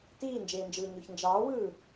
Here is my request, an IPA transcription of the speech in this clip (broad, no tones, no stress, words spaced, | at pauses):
tiːnd͡ʒeːnd͡ʒɯː ɲoçnd͡ʒɑːwɯː